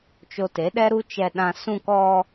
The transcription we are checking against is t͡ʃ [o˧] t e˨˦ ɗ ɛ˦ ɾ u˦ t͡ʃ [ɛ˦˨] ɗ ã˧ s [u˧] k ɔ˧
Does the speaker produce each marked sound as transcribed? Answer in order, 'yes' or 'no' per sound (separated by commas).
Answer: yes, no, no